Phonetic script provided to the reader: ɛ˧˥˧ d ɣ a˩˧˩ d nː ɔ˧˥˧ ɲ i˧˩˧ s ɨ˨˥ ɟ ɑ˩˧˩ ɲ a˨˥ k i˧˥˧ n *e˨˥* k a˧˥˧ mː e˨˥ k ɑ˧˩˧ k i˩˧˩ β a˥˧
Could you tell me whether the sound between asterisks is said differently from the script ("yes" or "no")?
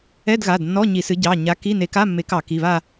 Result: no